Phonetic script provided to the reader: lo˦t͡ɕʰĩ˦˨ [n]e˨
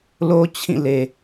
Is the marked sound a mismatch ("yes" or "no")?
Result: yes